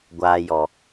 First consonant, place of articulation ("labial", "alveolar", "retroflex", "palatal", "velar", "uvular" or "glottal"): velar